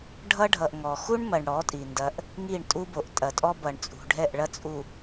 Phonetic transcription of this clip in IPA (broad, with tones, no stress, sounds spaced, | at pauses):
ɖʱ ʌ˦ ɖʱ ʌ˨ ʔ ŋ ɔ˨ x u˦ ɳ m ɐ˨ ɳ ɽ ɔ˨˦ tʼ i˨ n d ɐ˦ ʔ | ŋ i˦˨ ɳ tʼ u˦ b o˨ ʔ tʼ ɐ˨ tʼ ɔ˦ b ʌ˨ ɳ t͡sʼ ṳ˨ ɖʱ ɛ˦˨ ʔ ɭ ɐ˦ t͡sʼ u˨